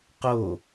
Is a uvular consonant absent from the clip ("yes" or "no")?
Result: no